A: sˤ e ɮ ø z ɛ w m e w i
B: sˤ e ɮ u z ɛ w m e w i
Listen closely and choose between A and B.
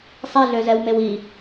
A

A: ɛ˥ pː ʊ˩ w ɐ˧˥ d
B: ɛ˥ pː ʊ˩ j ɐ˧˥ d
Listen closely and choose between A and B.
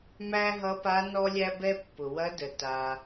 A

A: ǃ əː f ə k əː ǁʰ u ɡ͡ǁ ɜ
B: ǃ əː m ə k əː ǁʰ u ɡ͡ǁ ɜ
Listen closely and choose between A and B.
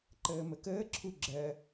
B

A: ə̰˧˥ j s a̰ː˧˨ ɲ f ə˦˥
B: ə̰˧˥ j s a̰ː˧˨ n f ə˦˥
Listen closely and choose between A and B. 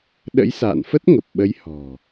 B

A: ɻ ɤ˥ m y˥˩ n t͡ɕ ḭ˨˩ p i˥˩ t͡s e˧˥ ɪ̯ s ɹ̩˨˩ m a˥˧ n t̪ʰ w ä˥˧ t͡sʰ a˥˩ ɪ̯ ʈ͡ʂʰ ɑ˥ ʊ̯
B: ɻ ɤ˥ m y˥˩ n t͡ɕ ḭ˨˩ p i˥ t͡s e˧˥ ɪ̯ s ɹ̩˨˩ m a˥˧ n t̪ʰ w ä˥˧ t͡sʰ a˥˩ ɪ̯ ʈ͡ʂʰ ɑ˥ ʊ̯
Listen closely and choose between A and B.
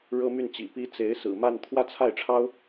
B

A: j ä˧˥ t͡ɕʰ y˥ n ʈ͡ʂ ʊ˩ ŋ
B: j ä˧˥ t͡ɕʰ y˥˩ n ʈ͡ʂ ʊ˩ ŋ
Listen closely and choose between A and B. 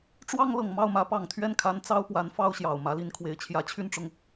B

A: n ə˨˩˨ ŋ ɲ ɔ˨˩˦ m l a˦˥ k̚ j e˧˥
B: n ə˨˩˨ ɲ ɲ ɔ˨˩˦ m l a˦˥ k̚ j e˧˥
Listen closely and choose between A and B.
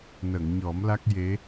A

